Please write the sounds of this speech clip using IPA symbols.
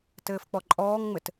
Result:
t ɘː f k͡p ɔ ǃʼ ɔː ŋ ŋ͡m ɘ t

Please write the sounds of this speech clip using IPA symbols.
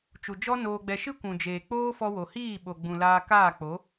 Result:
t͡ʃ u˨ d͡ʒ ɔ˦ n oː˧ ɡ͡b ɛ˧ ʃ ɨ˦ kʷ ũ˨ d͡ʒ eː˨ k͡p oː˦ f ɔ˧ w o˨ h iː˦˨ ɓ o˨ ɡ͡b ũ˨ l aː˧ k aː˦˨ k͡p o˨˦

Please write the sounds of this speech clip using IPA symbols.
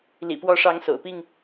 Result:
l ḭ˨˩ p w ɔ˨˦ ʂ ɑ˨˦ ŋ s o̰˨˩ ʊ̯ p i˥˨ ŋ

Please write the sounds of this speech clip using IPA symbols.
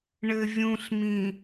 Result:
ɳ ɘ vʲ ũ ɬ m ĩ

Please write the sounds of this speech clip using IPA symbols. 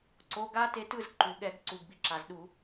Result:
ǀ o˩˧˩ ɡ a˦˥ t e˧ t ɯ˥˨ z ǃ u˩ ɠ ɛ˧˩˧ ɡ ǀ u˩˧˩ ɡ b i˧ ǁ a˩ z ɗ u˧˩˧

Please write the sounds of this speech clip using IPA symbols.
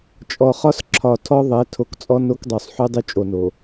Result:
t͡ʃʼ ɔ˨ χ ɒ˦ s ǁʰ ɒ˨ tʰ ɔ˦ ðˤ ɛ˨˦ tʰ o˨ k t͡sʼ ɔ˦ n o˦ k dˤ o˨ sˤ ħ y˦ dˤ y˦ t͡ʃʼ o˨ n o˨

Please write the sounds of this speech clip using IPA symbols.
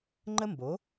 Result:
ŋ͡ǃ ə˥ m b o˨˥

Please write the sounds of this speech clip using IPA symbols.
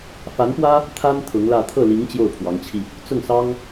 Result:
f a˧˥ n p w ä˥ | t̪ʰ a˥ n t̪ʰ ʊ˧˥ ŋ l ä˥˧ t̪ʰ ɤ˥˩ l i˧˥ ŋ t͡ɕ j o˥˩ ʊ̯ pʰ w ɑ˧˥ ŋ t͡ɕʰ i˧ | t͡s ʊ˥˩ ŋ s ɑ˥ ŋ

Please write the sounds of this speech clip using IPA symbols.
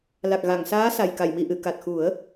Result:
l a˨˩ k̚ ɣ a˨˩˨ ŋ s aː˧˥ s a˨˩ j k a˨˩˨ j m i˨˩˨ ʔ ɨ˨˩˨ k a˨˩ t̚ x u˨˩˦ ə̯

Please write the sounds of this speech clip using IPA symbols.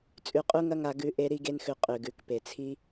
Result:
t͡sʼ ʉ˧ qʼ u˦ ŋ ɐ˦ ŋ a˧ ɡ ʉ˧ ʔ e˦ ɾ i˦ ɡ e˦ n x ʉ˧ qʼ ʉ˨ ɡ ʉ˨ k p e˨ t͡sʰ i˦

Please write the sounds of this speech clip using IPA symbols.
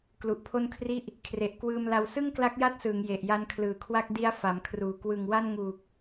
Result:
k l u˨˩ ʔ pʰ o˥˩ n kʰ r i˥˩ ʔ | kʰ r e˨˩ ʔ k w ɯː˧ m l a˧ w s ɯ˥˩ ŋ k l a˦˥ k̚ j a˦˥ t̚ s ɯː˩˦ ŋ j e˨˩ ʔ j a˦˥ n kʰ l ɯː˨˩ kʰ w a˥˩ k̚ d i˦˥ a̯ f a˩˦ m kʰ r uː˩˦ k w ɯ˨˩ ŋ w a˥˩ n ŋ uː˨˩ k̚

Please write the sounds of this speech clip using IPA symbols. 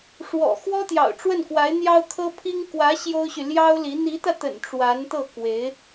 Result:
ʂ w ɔ̰˨˩ x w ɔ˥ t̪ j ɑ̰˨˩ ʊ̯ ʈ͡ʂ w ə˥˩ n k w a˧˥ ɪ̯ n̪ j ɑ˥ ʊ̯ kʰ ɤ˥ pʰ i˥ ŋ k w ä˧˥ ɕ j o˥ ʊ̯ ɕ y˨ l j ɑ˥ ʊ̯ l i˧˥ n̪ i˧˥ t̪ ä˧ t̪ ə̰˨˩ n ʈ͡ʂ w a˧˥ n t̪ ɤ˥˩ k w e˧˥ ɪ̯

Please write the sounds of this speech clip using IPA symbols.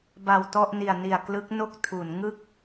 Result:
b a˨˩ w t ɔ˥˩ ʔ n i˨˩ a̯ n i˨˩ a̯ k l ɯ˦˥ k̚ n o˥˩ k̚ tʰ u˩˦ n ŋ ɯ˥˩ k̚

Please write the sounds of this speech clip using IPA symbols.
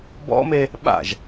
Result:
b ɔ̰ m e | ɓ a̰ ʒ

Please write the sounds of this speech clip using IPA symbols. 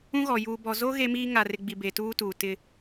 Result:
ũ˦ ɣ ɔ˨ j uː˨ b ɔ˨ z o˦ ɣ e˦ m iː˦ ŋ a˨ r ɪ˨ ɡ͡b i˨ b e˨ t uː˦ t uː˨ t ɪ˦

